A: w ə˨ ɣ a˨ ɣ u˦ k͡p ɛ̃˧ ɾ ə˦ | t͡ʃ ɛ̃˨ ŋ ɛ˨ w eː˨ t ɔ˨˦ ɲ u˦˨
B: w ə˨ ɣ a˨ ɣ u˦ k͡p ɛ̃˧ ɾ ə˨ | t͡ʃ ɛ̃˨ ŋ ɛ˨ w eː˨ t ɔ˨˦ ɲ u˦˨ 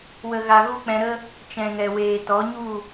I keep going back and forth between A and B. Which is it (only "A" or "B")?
A